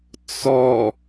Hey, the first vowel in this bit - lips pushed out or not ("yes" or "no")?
yes